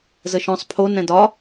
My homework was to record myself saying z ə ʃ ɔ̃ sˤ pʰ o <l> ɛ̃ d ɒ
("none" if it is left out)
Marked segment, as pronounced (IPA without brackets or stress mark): n